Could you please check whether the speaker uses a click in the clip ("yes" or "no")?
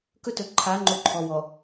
yes